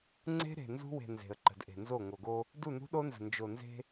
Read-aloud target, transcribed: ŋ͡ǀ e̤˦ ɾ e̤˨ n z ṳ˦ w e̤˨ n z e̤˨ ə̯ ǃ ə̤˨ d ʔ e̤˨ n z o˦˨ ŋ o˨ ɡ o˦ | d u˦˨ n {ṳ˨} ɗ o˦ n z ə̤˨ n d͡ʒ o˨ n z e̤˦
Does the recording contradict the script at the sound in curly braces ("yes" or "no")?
yes